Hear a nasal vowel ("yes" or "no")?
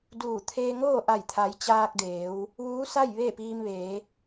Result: no